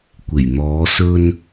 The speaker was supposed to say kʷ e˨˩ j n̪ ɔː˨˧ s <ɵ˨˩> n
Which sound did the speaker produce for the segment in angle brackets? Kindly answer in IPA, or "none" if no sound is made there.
ɵ˧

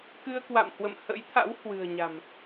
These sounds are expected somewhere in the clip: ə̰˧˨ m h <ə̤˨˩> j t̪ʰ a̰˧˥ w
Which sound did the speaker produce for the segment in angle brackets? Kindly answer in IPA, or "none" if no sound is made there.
ə̰˧˥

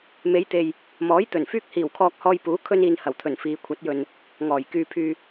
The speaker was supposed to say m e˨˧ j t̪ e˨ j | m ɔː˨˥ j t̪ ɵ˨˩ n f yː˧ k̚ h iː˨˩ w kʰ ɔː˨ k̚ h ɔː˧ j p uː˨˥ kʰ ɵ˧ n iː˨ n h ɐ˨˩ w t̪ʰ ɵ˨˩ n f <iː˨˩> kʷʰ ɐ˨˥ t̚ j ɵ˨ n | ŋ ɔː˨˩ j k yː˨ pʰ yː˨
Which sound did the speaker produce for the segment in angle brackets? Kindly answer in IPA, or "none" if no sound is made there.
iː˨˧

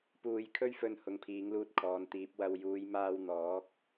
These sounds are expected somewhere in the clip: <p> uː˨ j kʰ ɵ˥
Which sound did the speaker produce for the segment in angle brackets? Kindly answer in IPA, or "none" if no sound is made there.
p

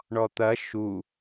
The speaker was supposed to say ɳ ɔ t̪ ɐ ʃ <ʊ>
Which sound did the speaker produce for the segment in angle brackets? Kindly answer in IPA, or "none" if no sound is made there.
u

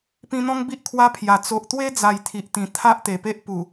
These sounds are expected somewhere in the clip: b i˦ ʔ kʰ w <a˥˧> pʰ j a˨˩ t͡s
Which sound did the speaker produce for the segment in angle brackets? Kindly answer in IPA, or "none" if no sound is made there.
a˦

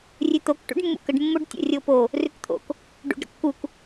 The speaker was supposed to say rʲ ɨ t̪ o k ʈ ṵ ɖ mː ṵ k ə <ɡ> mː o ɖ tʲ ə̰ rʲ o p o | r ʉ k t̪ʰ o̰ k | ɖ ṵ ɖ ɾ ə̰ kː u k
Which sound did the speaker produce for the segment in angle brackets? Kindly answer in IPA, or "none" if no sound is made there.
ɖ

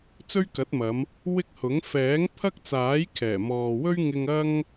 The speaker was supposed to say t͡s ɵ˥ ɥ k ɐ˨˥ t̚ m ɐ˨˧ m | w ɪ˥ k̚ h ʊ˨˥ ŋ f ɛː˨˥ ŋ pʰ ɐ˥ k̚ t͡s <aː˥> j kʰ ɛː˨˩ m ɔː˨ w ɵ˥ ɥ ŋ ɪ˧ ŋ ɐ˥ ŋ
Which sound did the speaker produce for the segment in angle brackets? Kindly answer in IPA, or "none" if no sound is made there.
aː˨˥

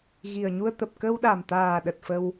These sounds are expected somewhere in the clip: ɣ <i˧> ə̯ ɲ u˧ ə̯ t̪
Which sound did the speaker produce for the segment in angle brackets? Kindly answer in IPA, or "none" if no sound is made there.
i˨˩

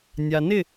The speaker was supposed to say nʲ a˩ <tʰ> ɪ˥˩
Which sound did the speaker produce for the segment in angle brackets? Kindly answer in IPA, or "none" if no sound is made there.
n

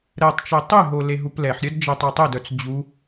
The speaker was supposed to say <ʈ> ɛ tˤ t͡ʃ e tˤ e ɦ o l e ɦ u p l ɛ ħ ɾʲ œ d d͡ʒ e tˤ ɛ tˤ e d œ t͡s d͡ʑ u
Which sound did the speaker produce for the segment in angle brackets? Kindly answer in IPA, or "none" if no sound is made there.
ɾ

